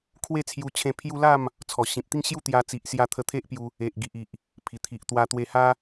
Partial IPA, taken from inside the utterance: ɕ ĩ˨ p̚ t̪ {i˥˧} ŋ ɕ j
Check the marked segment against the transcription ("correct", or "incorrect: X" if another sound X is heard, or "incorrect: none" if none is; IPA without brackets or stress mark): correct